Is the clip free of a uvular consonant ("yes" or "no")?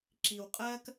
no